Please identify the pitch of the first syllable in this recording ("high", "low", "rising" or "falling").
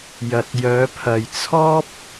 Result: low